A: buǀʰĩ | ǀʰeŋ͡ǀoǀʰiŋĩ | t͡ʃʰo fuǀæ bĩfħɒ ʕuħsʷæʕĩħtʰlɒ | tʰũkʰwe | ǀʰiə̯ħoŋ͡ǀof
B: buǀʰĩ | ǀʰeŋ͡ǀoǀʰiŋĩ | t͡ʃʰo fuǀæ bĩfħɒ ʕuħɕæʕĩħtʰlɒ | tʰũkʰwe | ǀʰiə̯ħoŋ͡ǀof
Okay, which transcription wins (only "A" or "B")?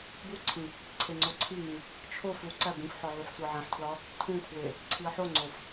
A